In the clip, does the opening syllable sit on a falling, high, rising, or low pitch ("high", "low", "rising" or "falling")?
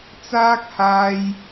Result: high